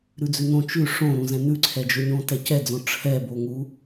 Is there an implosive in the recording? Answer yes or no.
no